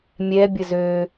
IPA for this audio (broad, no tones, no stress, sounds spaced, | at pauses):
mʲ ɛ bʲ ə z ø